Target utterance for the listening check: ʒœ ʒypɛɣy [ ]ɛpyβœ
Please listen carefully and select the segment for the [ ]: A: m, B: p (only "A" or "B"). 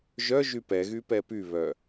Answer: B